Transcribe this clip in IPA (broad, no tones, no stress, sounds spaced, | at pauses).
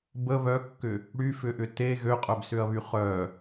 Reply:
b ə β œ kː ʏ | ɽ y f ʏ ʔ ʏ t e ɣ ø qʼ œ b s ʏ ɐ̯ β y χ œ